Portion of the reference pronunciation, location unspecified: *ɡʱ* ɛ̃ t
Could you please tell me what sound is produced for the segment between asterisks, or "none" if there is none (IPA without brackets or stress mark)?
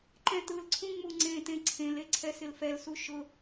ǃ